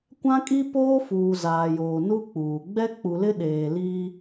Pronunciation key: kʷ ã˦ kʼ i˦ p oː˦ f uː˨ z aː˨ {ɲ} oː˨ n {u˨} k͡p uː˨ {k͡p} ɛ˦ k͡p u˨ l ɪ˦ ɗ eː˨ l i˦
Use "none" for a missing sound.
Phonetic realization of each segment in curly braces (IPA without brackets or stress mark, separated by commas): j, u˦, ɡ͡b